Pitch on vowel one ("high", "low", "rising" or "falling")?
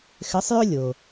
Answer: rising